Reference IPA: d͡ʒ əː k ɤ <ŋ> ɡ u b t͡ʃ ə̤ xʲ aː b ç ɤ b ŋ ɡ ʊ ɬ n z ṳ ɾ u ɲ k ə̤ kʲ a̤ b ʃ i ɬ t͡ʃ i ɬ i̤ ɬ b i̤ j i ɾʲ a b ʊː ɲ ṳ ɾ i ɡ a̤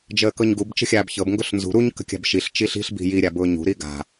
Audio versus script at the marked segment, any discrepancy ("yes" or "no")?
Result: yes